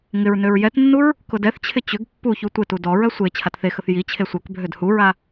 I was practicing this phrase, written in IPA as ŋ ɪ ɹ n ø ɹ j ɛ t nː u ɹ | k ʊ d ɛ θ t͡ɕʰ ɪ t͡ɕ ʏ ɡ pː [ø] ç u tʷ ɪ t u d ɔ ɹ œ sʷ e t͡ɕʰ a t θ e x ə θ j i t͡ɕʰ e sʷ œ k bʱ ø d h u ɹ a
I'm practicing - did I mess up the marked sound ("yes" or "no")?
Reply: yes